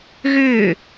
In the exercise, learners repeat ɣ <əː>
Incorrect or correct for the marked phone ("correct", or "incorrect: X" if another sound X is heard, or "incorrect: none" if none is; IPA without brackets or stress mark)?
incorrect: ʏː